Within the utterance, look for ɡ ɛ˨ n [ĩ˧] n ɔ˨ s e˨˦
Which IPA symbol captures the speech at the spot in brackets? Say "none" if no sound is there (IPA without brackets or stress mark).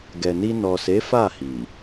i˧